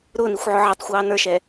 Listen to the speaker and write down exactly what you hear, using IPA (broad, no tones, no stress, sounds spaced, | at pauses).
ɾ ʊː n i xʷ ʕ ʊ ʕ ɪ tˤ xʷ ɑː n ə˞ ʃ ɛː